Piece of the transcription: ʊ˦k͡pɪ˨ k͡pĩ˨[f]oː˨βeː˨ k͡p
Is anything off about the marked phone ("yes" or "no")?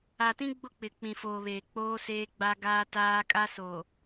no